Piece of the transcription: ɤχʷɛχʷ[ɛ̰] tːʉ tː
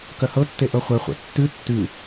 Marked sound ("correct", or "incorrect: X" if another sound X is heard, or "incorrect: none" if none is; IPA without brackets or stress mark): correct